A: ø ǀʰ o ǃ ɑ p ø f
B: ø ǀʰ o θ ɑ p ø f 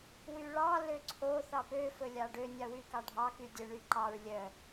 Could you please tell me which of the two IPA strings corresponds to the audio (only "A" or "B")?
B